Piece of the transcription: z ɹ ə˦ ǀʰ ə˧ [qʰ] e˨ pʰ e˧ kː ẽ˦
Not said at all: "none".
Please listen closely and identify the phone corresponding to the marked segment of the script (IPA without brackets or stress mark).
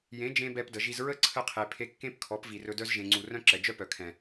qʰ